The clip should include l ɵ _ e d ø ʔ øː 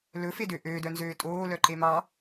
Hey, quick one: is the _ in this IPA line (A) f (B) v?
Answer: A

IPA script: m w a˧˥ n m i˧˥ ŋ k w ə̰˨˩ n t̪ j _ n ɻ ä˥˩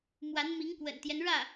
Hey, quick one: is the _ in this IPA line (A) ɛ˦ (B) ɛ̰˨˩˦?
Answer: A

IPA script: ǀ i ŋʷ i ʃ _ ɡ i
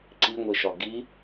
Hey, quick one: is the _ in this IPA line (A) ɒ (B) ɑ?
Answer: A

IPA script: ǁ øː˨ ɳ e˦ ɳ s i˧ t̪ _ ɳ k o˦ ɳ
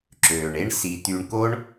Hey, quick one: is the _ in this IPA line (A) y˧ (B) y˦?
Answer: A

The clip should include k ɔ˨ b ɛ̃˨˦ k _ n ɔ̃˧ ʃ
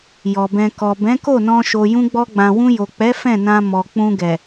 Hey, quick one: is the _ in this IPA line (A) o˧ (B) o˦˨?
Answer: B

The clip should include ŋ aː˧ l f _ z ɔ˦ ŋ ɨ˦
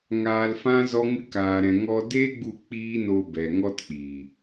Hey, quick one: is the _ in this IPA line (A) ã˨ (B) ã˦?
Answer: B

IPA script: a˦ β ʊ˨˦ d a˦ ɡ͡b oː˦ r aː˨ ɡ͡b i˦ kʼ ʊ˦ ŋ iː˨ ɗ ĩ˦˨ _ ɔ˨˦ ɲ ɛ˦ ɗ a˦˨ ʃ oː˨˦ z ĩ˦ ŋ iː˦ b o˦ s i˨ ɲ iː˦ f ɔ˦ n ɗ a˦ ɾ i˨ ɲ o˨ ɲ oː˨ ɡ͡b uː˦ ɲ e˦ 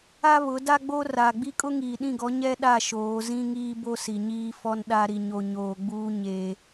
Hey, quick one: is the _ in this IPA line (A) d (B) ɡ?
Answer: B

